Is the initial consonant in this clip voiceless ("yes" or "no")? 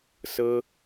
yes